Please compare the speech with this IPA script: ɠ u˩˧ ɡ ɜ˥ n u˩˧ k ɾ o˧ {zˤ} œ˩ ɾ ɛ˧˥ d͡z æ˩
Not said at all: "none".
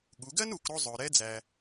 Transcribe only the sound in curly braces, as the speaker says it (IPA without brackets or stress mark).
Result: zˤ